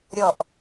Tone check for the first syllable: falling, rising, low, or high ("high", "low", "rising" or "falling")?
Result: falling